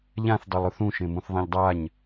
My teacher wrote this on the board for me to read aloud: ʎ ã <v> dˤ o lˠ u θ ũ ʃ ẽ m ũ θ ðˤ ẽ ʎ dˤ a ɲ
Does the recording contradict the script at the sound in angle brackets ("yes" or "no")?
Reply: yes